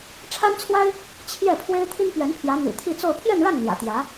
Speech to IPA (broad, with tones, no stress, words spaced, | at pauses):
ʈ͡ʂʰa˥nt͡sʰwa˥ɪ̯ | t͡ɕʰjɛ˥˩ pʰwe˥ɪ̯t̪ʰi˥npɥɛ˧˥npʰjä˧˥ n̪y̰˨˩t̪ʰi˥˧t͡so˥˧ʊ̯ pʰjɛ˥˧nɻa˥˩n n̪jä̰˨˩t̪jä˧˥